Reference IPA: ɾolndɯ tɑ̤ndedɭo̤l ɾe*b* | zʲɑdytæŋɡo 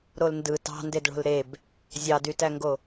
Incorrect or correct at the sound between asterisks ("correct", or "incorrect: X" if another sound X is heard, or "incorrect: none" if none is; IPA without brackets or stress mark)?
correct